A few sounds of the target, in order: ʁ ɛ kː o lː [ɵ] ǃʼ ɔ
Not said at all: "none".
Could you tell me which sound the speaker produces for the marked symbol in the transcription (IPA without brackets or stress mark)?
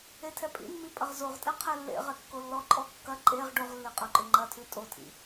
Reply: ɔ